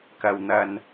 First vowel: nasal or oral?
oral